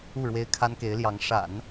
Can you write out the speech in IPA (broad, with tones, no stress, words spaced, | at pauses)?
u˥˩ɻwe˥ɪ̯ kʰa˥nke˧˥ɪ̯ljɑ˧˥ŋ ʂa̰˨˩˦n